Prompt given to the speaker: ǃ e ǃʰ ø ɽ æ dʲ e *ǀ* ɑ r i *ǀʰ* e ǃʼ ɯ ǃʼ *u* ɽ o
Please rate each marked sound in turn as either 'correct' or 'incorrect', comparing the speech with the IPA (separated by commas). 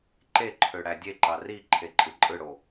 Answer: incorrect, incorrect, incorrect